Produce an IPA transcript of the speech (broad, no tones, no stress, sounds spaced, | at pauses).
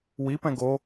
w i p ɛ̃ ɡ o